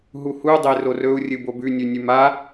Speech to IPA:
ɦ u h u dˤ e r o r ɵ u̯ rʲ ɨ b o b ʉ nʲ ʉ nʲ ʉ m a

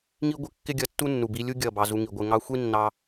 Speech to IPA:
ŋ i˦ ɡʷ ɪ˦ kː ɪ˦ ɡʲ ʌ˧ tː u˦ nː u˨ b i˧ lʲ u˦ ɡʲ ʌ˦˨ b ɑ˧ z u˧ ŋ i˨ ɡʷ ɪ˧ ŋ ɑ˧ xʷ i˦ nː ɑ˧

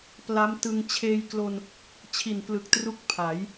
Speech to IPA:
p l a˦˥ m t ɯ˧ ŋ t͡ɕʰ eː˧ j k l o˧ n | t͡ɕʰ i˨˩ n p l ɯ˨˩ k̚ t r u˦˥ k̚ pʰ a˩˦ j

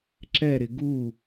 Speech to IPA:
ǁ ɛ ɾ ɪ ɡ u

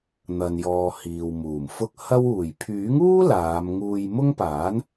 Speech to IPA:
n̪ ɐ˨ n j ɔː˨ h iː˨ w m uː˨˩ m f ʊ˥ k̚ h ɐ˥ w uː˨˩ j pʰ yː˨˥ ŋ uː˥ l aː˨˧ m ŋ uː˧ j m ʊ˥ ŋ p aː˨˥ n

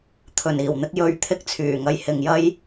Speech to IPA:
t̪ʰ ɵ˨˩ n iː˨˩ w n̪ ɪ˧ k̚ j ɵ˨˧ ɥ t̪ʰ ɪ˥ k̚ t͡sʰ yː˨˩ ŋ ɐ˧ j h ɪ˨ ŋ j ɐ˥ j

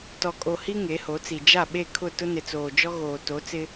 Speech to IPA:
t ɔ˨ kʼ o˨ h i˦ ŋ e˨˦ h o˨˦ t͡s i˨ d͡ʒ a˦˨ ɓ e˦˨ kʰ ʊ˦˨ t ʊ˦ n ɪ˨ t͡s oː˨ d͡ʒ ɔ˦ ɣ oː˨ t o˨˦ t͡s ɪ˦

